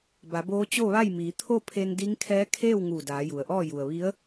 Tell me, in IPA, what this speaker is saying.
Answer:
b a˩˧ b oː˧˥ t͡ɕ o˥˨ ʋ a˥˨ j m iː˩˧ t̪ʰ o˥˨ pʰ e˧ n d i˧˥ ŋ kʰ ɛː˧˥ kʰ eː˥˨ w ŋ uː˧˩ d aː˩˧ j u˩ ə̯ ʔ ɔː˥˨ j u˩ ə̯ ʋ i˧˥ ə̯

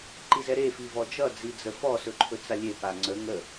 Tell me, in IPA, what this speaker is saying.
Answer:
ǃ i z ɛ ɾ e f i v ɔ d͡ʒ ʌ d͡z i d͡z ə f ɔ s ɵ ǃʰ ɵ t͡s a lʲ e p a ŋ͡ǀ ə ŋ ə

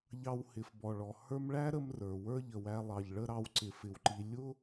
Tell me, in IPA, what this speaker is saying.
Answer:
ʎ ɑ˦ w h ɪ˨ f b ɔ˩ ɭ ɔ˩ h ə˞˦ m ɭ æ˥ ɾ ə˦ m r ə˞˩ w ə˞˦ ʎ ə˩ w æ˨ lˠ ɑ˩ ʎ ɭ ə˦ ɾ ɑ˨ w ǀ ɪ˩ f ɪ˩ w ǃ i˩ lʲ ʊ˦

